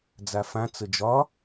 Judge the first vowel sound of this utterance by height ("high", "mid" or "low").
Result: low